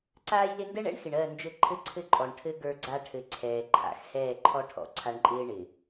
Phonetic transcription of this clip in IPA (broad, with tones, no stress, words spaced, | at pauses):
ǀaː˦jlɪ˦ ndɛ˦ɳɛ̰˦ɳxɪ˨ɳ ɜ˦˨nd͡ʒɘ˦˨ ǃʰɘ˦ǀʰɘ˦ǃʼɔ˨ɳ ʈʰɘ˦ ɡə˞˦ɡ͡ǀa˦ ʈʰɘ˨ ǀʰɛː˨ǃʰa̰˨x hɛː˦˨ǃʰɔ˦ʈʰɔ̰˨ ǀʰa˦ɳǃʼɪː˦ ɳɪ˨